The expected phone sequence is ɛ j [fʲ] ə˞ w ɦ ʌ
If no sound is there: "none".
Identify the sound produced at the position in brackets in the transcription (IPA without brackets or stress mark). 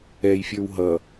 fʲ